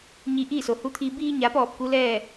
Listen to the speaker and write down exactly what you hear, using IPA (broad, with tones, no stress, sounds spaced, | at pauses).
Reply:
ɲ i˧ ʔ iː˥˨ s o˩ h u˧˥ t̪ʰ i˧ b iː˧ ɲ a˩˧ p ɔː˧˩ p̚ k u˧˥ l ɛː˥˨